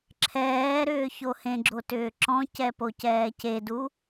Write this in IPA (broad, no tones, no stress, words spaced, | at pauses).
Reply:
ǁʰɛː ɾʏːçohẽɡ͡ǁo tʏːǁɔ̃cɛ pocɛːcedu